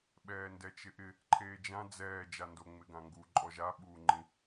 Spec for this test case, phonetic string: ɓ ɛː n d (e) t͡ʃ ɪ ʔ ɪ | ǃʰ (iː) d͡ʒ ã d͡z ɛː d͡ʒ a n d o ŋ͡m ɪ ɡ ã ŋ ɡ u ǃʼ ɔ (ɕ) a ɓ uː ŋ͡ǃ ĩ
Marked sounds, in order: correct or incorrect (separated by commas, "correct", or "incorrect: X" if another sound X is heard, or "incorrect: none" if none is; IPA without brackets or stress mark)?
incorrect: ɛ, incorrect: eː, incorrect: ʒ